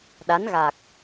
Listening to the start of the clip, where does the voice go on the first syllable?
rising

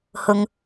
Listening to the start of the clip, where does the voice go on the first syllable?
low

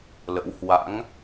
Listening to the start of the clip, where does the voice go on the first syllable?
rising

